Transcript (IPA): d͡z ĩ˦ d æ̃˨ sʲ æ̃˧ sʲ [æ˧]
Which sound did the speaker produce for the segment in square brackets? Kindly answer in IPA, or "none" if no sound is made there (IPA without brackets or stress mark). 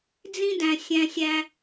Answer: æ˧